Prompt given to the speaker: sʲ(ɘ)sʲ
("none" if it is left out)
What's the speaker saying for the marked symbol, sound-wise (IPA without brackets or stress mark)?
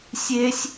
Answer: e